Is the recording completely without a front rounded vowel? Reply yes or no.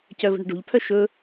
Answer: no